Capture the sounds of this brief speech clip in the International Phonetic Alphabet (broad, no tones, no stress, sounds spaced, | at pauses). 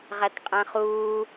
ʁ æ t qʼ æ̃ χ uː